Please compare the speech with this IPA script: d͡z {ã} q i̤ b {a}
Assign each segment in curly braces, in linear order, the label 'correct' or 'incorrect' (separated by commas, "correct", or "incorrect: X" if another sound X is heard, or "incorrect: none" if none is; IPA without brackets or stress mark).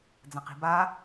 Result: correct, correct